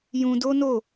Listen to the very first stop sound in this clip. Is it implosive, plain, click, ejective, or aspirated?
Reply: plain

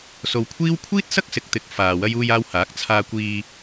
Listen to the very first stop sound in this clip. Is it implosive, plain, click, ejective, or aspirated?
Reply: aspirated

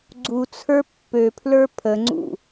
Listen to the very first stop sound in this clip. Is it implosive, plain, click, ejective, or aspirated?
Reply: click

